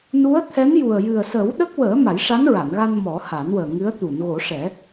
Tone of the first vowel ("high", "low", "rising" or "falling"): rising